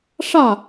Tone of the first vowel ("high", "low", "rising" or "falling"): falling